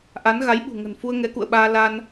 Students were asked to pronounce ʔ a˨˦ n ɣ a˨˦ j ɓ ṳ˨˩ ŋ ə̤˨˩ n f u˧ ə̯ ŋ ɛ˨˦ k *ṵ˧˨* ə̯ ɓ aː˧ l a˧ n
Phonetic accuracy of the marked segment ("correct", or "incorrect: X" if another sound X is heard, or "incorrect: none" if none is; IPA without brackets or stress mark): correct